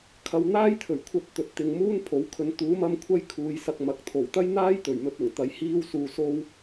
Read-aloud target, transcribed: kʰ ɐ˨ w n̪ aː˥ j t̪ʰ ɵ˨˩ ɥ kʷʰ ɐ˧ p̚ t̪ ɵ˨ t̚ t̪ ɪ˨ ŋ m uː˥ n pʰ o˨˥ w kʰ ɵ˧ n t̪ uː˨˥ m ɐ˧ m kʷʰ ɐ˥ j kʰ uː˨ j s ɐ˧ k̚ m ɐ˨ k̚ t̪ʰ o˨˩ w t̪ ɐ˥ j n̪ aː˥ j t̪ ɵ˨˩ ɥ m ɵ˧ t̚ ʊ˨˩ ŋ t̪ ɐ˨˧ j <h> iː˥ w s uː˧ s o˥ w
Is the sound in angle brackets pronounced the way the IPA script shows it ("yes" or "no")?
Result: yes